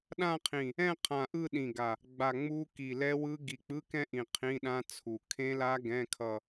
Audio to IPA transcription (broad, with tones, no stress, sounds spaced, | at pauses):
ɗ ã˥˧ qʰ ĩ˧˩ | ɛ̃˥˧ qʰ ã˧˩ ʔ ɯ˥˧ ɗ ĩ˧˩ ɡ a˧˩ | ɡ͡b a˧˩ ŋ͡m u˦˥ k i˧˩ l ɛ˦˥ w ɯ˦˥ ɡ i˧˩ k͡p ɯ˧˥˧ k ɛ̃˥˧ ʔ ĩ˧˩ qʰ ĩ˧˥˧ ɗ ã˦˥ t͡sʰ u˧˩ kʰ ẽ˦˥ l a˦˥ ɡ ɛ̃˧˥˧ kʰ ʌ˥˧